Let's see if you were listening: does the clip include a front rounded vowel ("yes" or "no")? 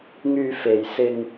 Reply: yes